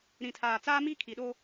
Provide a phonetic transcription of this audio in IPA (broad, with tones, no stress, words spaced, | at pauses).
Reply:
ɾĩ˨tʰaː˨t͡saː˦miː˦ kʰi˨ɗo˦